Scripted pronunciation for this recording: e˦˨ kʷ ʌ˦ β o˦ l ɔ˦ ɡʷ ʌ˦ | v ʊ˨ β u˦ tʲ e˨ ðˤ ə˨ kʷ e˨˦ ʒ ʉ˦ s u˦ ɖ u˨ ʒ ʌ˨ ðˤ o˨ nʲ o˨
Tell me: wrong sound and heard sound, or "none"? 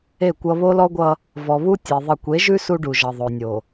ʊ˨ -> ɔ˨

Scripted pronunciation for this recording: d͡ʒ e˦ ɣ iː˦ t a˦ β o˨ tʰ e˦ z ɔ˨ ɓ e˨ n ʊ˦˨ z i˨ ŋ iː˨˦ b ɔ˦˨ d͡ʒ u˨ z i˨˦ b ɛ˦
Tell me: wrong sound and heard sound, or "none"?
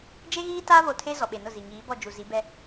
none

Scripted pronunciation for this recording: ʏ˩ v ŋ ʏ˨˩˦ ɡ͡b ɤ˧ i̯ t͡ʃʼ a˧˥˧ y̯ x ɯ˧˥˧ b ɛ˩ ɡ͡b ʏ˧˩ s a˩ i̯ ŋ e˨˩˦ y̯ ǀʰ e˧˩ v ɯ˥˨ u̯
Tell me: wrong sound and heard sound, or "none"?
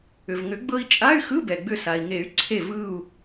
none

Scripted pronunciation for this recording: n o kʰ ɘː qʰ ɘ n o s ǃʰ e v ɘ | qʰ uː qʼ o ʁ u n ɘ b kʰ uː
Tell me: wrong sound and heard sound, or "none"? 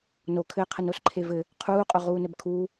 u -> uː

